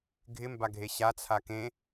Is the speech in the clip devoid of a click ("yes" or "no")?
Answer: yes